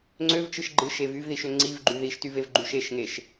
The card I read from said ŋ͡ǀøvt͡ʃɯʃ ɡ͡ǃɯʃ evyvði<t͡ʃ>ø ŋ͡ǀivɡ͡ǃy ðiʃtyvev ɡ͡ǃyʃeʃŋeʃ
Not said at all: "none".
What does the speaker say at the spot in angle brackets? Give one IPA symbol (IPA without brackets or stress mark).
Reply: ʃ